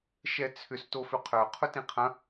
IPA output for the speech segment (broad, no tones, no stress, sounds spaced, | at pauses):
ʃ ɛ t͡sʰ ʏ s t o f ʏ qʰ œ qʰ ʊ t ĩ qʰ ɐ̃